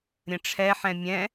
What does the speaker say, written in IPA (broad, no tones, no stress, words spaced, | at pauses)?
ɾʲə̃ʈ͡ʂʰɛħɛ̃ mʲɛ̃